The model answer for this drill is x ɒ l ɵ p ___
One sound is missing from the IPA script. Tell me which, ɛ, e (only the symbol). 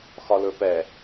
ɛ